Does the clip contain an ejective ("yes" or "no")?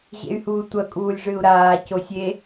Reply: yes